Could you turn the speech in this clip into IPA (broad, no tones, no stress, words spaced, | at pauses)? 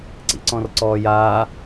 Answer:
ǀḭǀɔ̃rǀɔːjaː